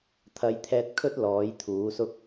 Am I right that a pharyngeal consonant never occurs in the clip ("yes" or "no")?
yes